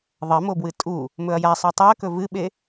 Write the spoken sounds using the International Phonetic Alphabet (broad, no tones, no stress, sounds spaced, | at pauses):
ðˤ ɐ m o b w ɨ tʼ u | m ɵ ɐ̯ j a sˤ ʉ tˤ ɨ ɐ̯ k ɵ v ɨ ɓ e